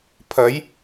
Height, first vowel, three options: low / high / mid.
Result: low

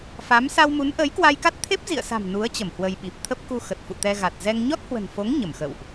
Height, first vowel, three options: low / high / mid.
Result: low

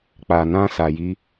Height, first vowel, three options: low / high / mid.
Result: low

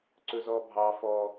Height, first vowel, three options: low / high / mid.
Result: mid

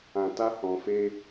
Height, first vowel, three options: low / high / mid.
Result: low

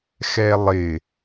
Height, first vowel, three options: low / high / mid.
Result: mid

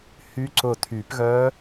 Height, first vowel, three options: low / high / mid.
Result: high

